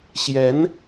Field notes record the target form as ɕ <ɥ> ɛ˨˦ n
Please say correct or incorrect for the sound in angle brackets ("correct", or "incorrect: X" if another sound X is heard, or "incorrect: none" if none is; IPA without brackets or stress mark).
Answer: incorrect: j